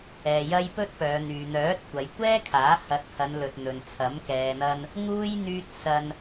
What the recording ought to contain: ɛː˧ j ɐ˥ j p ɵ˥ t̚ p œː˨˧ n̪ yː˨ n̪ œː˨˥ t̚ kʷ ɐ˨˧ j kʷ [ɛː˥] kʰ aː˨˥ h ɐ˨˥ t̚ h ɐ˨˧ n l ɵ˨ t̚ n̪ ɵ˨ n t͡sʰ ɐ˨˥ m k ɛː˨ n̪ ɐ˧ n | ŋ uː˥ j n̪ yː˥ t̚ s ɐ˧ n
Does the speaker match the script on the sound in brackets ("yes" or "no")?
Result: yes